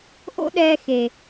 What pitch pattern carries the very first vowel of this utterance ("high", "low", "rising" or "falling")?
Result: high